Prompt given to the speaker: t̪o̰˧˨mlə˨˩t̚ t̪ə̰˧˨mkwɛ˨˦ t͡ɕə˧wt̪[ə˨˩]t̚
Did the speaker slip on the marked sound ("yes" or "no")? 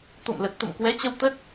yes